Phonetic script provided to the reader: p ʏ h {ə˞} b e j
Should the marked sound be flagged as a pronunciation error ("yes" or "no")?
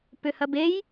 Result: yes